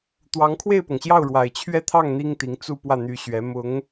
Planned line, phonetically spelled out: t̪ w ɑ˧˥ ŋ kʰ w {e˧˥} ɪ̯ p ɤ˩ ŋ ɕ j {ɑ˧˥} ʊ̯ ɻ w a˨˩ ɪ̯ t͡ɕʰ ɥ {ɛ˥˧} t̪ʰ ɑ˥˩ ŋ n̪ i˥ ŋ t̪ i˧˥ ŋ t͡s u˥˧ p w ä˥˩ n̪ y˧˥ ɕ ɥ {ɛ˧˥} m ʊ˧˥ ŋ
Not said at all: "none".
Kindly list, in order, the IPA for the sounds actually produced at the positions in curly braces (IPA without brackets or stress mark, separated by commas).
e˥˩, ɑ˥˩, ɛ˥˧, ɛ˧˥